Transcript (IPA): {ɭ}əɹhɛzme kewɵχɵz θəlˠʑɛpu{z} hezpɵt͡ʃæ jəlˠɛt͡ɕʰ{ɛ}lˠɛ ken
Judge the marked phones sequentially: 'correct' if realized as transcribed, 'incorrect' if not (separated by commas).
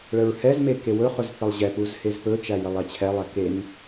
correct, correct, correct